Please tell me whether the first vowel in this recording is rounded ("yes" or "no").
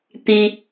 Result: no